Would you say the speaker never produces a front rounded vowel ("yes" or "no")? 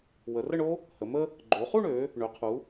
no